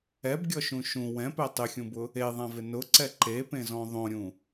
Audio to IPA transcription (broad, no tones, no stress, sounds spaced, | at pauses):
ɛ b ɡʲ ɔ ʃ ũ ʃ ũ w ɛ̃ p ɛ tˤ ɪ xʲ ũ b ʊ | e ðˤ ã v ɪ n ʊ ǀ ɛ ǃ e p ẽ z ɔ̃ ðˤ õ ɾʲ ũ